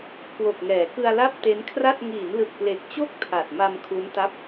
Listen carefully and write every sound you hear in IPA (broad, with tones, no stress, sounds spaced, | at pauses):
k w o˨˩ k̚ ŋ ɛː˩˦ k ɯ˧ a̯ l a˥˩ p̚ t e˦˥ n kʰ r a˥˩ t̚ ŋ iː˩˦ n l ɯ˨˩ k̚ p l e˨˩ k̚ t͡ɕ o˦˥ k̚ tʰ a˨˩ t̚ m a˧ m kʰ u˦˥ n t a˦˥ p̚